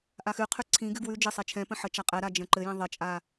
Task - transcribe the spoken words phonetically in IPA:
ʔ a x ʉ qʰ ʉ ǀʰ ĩ ɡ ʉ ɡ w ʉ d͡ʒ ɘ sˤ e t͡ʃʰ ɛ̃ p ə̃ ħ ə t͡ʃ a qʼ ɛ ɾ a d͡ʒ ə̃ ǃ ɘ j ɛ̃ ðˤ ə t͡ʃʼ a

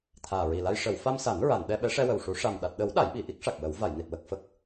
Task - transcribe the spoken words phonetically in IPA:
t̪ʰ aː˨˩ ɹ i˨˩ l a˧ j ʂ ə˨˩˨ w f a˧ m s a˨˩˦ n ɹ a˨˩˨ n ɗ ɛ˧ ɓ ɛ˧˥ ʂ ɛ˧ w ə˨˩ w ʂ u˨˩˦ ʂ a˨˩ m ɗ a˨˩ t̚ ɗ ə˨˩˦ w ɗ a˨˩˦ j ɓ i˨˩ ʔ i˦˥ k̚ ʂ a˨˩ k̚ w ə˨˩˦ w v a˨˩˨ j n i˨˩ t̚ w ə˨˩ k̚ f ə˦˥ k̚

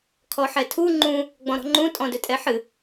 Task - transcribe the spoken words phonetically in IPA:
kʰ ɔ ħ ɛ tʰ u ŋ͡ǃ ũ | ɡ͡b ɔ̃ ɾ ɔ̤ ŋ͡ǃ ũ tʼ ɔ̃ d ɵ tʼ ɛ ħ ɨ

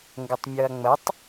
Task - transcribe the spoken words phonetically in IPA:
ŋ ɡ ə tˤ mʲ ɤ ɐ̯ ŋ͡m ə tˤ

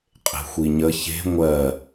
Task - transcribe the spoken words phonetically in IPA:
qʼ e̤ xʷ i ɲ ə ç e̤ ŋʷ ɜ

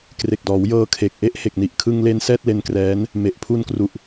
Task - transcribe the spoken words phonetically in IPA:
k r e˨˩ k̚ d ɔː˩˦ w j ɤː˧ kʰ e˨˩ k̚ ʔ e˥˩ ʔ h e˨˩ k̚ n i˨˩ ʔ kʰ ɯ˧ ŋ l e˧ n s ɛː˥˩ t̚ l e˦˥ n k r ɛː˦˥ n | m e˨˩ ʔ pʰ u˧ n k r u˨˩ ʔ

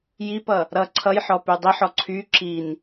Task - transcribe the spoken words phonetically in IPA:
j i p ʌ | ɾ ʌ ǀʰ ʌ j ħ ɔ p y dˤ i ħ ɔ ǀʰ y ǁ i n

